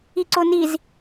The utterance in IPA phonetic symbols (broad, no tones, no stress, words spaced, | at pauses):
iǀoniz